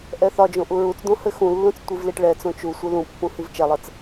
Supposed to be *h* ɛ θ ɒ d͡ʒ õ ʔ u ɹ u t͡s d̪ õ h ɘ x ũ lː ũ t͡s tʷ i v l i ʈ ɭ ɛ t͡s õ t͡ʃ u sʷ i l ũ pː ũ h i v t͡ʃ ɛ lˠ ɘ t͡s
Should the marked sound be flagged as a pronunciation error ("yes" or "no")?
yes